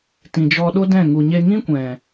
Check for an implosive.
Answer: present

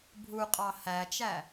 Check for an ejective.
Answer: present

